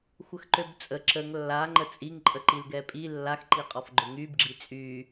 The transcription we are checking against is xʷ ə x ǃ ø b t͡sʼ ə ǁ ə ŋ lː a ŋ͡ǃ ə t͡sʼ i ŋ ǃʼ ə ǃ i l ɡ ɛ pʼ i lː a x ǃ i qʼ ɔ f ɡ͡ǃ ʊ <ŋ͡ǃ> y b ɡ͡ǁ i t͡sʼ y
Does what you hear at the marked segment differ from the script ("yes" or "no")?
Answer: yes